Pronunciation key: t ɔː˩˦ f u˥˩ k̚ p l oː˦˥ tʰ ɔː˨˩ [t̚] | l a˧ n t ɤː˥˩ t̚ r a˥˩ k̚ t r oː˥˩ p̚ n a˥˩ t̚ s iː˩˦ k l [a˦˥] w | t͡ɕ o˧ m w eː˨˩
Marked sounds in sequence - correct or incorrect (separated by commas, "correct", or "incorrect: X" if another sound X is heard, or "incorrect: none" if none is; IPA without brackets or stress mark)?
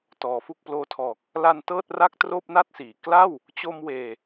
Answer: incorrect: k̚, incorrect: a˥˩